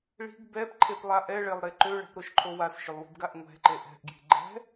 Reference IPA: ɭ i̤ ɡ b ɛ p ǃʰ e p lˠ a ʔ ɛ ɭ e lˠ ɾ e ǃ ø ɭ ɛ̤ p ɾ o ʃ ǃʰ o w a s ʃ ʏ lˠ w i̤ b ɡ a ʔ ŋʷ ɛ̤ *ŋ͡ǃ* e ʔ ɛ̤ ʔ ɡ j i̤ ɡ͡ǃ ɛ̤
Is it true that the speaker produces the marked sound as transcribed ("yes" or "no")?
no